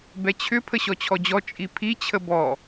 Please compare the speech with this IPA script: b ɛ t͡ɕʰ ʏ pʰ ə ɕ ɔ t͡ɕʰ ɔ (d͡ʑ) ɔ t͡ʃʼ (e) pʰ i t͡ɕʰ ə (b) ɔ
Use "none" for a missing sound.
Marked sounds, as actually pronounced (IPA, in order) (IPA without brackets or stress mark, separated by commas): d͡ʑ, i, b